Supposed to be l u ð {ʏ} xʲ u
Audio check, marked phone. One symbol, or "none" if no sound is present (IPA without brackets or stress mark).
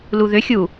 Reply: ʏ